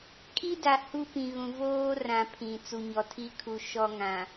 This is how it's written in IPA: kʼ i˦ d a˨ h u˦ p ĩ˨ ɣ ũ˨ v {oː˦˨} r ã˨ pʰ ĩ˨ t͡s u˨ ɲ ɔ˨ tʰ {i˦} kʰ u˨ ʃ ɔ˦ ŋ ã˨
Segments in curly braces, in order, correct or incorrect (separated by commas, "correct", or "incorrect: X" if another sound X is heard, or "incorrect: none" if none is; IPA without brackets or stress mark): incorrect: oː˦, correct